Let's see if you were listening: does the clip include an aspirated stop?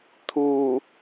yes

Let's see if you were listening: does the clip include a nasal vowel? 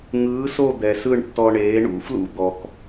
no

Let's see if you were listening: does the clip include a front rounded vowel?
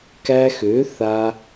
yes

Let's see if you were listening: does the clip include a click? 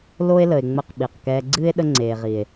yes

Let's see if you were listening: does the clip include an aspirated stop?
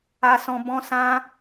no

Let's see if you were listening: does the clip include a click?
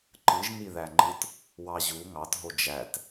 yes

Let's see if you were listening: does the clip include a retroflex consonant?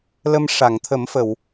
yes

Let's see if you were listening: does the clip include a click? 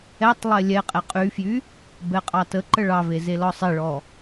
yes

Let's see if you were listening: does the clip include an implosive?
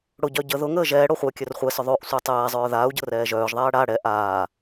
no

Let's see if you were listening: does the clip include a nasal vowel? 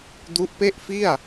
no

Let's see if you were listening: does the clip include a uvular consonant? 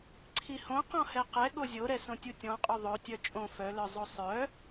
yes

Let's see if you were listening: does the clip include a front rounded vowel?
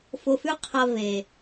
no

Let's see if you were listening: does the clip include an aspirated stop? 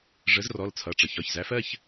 yes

